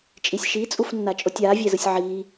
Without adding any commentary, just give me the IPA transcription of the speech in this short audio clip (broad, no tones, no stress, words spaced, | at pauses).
t͡ʃʼisʲʃit͡sʼufnːa t͡ʃʼotʲaːvʲɛzɯsʲ ʕiː